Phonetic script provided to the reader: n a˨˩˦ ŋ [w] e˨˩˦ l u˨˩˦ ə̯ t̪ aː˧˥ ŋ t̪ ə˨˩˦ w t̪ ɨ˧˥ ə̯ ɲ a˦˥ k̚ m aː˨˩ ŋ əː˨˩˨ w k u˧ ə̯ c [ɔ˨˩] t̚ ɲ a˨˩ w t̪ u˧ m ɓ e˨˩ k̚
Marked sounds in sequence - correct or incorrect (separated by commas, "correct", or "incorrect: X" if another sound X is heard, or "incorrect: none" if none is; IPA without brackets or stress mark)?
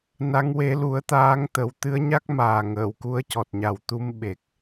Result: correct, correct